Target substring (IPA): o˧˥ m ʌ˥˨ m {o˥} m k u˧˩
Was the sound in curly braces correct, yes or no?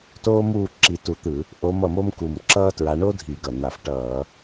yes